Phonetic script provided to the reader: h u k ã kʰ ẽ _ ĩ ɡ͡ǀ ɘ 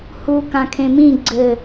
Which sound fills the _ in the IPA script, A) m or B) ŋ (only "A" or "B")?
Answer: A